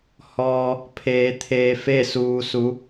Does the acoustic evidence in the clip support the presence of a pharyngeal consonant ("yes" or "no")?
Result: no